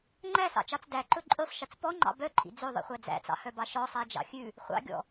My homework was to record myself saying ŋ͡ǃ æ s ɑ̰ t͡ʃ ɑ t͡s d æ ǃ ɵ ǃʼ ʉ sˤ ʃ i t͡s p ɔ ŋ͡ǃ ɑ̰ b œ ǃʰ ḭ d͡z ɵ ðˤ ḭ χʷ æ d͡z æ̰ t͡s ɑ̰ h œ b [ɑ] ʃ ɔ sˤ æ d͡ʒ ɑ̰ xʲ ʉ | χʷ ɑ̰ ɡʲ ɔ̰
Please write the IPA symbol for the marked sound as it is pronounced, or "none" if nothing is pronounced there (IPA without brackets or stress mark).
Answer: ɑ